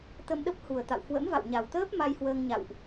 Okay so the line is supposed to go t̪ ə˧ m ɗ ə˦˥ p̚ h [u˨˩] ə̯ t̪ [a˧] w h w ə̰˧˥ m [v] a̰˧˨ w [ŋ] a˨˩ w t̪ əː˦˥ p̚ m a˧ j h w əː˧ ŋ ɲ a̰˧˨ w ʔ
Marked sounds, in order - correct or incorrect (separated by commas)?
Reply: correct, incorrect, correct, incorrect